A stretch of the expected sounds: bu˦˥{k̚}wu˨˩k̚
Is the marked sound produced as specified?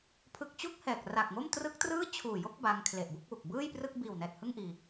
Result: yes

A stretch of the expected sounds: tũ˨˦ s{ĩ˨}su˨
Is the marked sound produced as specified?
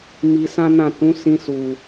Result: no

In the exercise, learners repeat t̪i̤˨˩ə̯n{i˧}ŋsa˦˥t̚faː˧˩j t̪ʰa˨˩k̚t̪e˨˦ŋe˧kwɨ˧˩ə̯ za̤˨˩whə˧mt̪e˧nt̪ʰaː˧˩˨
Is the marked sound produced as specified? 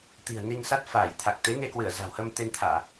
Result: yes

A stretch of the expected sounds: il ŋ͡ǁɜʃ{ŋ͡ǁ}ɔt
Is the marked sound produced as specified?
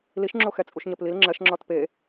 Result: yes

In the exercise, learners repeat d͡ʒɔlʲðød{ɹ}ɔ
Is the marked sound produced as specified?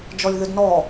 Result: no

